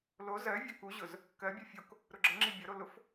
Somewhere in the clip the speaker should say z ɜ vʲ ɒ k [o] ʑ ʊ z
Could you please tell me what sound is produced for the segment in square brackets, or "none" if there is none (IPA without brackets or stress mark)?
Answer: u